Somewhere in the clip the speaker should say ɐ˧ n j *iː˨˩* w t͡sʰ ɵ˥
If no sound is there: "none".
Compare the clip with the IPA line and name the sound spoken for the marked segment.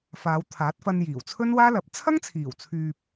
iː˨˩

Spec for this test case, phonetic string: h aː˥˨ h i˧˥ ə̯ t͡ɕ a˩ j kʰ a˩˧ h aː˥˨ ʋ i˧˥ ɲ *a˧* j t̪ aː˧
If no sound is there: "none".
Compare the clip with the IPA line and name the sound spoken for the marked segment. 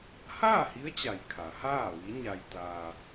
a˧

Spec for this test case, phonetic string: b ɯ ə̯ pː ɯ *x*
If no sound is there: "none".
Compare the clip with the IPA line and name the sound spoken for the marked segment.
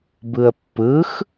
x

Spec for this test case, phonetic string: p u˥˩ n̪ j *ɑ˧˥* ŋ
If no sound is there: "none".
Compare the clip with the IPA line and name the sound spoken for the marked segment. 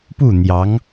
ɑ˧˥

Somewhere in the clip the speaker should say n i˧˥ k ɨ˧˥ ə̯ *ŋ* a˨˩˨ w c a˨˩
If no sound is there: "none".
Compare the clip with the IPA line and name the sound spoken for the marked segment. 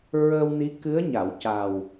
ɲ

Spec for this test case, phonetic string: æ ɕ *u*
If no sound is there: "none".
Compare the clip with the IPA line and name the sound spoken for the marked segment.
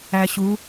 u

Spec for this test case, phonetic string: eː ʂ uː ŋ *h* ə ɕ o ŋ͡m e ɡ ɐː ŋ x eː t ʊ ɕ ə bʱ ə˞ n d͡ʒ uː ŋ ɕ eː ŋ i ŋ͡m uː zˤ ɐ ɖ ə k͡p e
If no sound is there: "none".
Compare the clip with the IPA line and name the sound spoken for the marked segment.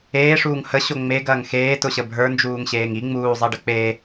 h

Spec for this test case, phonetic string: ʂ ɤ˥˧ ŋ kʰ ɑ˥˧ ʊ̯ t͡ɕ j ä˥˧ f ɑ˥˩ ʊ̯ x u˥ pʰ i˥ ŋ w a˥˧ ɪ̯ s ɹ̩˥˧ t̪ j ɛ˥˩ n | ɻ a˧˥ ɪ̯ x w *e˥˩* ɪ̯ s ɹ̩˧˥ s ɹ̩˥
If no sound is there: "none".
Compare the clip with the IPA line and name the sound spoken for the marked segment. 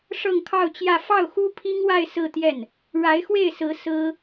e˥˩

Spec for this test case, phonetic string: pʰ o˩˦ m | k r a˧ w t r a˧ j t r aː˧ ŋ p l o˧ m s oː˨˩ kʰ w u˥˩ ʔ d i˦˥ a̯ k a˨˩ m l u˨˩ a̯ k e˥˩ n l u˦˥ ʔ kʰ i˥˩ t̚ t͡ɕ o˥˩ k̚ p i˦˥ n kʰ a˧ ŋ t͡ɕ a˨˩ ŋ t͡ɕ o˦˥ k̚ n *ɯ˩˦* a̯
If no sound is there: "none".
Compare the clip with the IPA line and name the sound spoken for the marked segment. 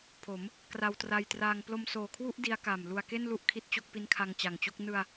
ɯ˧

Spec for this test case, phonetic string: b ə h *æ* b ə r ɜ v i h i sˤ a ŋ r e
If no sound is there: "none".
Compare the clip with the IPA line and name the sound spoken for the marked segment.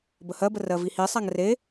ɜ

